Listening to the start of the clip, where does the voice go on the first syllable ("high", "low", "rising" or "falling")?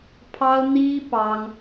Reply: high